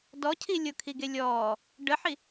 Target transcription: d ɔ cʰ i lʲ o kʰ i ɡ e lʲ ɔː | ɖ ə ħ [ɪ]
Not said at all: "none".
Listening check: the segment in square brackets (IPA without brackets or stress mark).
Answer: i